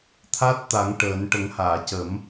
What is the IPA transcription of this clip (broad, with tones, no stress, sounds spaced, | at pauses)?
t̪ʰ a˦˥ t̚ t̪ a˨˩˦ ŋ ʈ əː˨˩˦ n ʈ ə˨˩˦ ŋ h aː˨˩˨ c ə˨˩˦ m